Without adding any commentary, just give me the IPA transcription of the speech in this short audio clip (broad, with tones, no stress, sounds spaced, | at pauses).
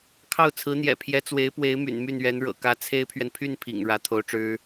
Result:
kʰ ɑ˥˩ ʊ̯ t͡sʰ ɹ̩˧˥ n̪ j ɛ̰˨˩ pʰ j ɛ˧˥ t͡s w e˧˥ ɪ̯ p w e˧˥ ɪ̯ m y̰˨˩ n m y˥˩ n ɥ ɛ˧˥ n ɻ ɤ̰˨˩ k ä˧˥ t͡sʰ e˥ ɪ̯ pʰ ɥ ɛ˨ n pʰ y˥˩ n pʰ ḭ˨˩ ŋ ɻ ä˧˥ t̪ʰ o˧˥ ʊ̯ ʈ͡ʂ ɻ̩˥